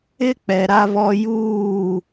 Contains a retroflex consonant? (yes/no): no